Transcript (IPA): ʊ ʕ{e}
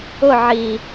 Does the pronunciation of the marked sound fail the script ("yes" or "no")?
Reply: yes